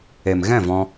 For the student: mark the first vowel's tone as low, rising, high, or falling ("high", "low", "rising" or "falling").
low